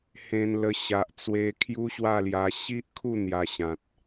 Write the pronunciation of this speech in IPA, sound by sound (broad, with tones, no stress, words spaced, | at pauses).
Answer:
hẽ˧nlə˧ ɕa˨ʔt͡swe˧ kʰju˦ɕwa˥˧lja˧ ɕi˦ʔkʰu˥˧ n̪ja˧ɕã˨t̚